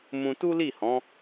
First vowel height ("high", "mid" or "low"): high